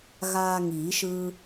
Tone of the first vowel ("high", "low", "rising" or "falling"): high